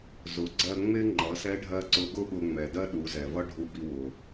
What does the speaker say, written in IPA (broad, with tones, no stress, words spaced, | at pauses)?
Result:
zʊ˩˧ ɡ͡ǀɜ˧ ŋ͡mɪ˥ ŋ͡ǃʌ˩˧sɛ˧˥ɖʱɜ˧ ǀʊ˧˥ ɡʊ˥ɓʊ˧ŋ͡mɛ˩dɜ˥ ɗu˩˧zɛ˩ vʌ˥ɖʱu˧bi˧ wʊ˩